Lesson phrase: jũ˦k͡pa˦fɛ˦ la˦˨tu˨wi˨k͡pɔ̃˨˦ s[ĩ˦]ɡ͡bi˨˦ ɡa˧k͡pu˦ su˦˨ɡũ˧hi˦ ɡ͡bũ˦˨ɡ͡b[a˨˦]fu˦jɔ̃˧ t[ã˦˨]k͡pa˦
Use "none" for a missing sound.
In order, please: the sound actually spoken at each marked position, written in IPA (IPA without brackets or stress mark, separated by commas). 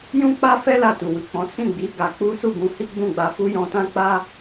ĩ˦˨, a˧, ã˦